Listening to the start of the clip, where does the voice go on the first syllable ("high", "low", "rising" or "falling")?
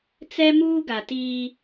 high